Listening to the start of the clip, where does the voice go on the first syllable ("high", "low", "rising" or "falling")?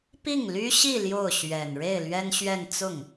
falling